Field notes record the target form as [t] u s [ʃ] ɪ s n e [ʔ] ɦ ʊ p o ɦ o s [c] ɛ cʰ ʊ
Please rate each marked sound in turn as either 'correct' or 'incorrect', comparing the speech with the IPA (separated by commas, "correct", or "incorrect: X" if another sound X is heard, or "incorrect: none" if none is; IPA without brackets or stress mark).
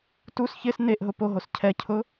correct, incorrect: ç, correct, incorrect: cʰ